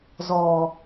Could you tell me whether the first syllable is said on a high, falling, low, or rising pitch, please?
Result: low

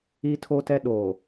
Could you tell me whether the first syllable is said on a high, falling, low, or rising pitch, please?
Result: high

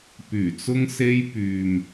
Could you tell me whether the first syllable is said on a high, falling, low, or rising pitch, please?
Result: low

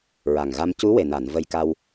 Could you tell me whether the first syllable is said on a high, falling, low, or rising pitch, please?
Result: low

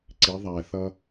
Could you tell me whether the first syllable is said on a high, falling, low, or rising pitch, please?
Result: rising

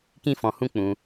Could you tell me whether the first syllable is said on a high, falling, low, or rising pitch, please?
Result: high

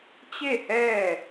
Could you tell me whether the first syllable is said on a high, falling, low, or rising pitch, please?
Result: falling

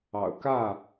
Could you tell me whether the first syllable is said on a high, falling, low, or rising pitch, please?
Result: low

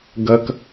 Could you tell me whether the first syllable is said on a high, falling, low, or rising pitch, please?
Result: low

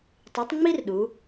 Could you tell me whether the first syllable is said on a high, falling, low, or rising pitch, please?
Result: rising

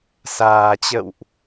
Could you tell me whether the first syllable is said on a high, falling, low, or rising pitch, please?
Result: low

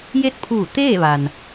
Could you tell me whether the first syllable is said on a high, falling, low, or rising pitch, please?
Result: falling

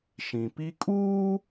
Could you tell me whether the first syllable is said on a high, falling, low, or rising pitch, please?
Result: low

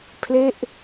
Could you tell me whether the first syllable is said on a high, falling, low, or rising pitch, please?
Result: falling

